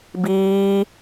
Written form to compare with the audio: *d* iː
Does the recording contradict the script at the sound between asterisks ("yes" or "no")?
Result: yes